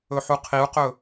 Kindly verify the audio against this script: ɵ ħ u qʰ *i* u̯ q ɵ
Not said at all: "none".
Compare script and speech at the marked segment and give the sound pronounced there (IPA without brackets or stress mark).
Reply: i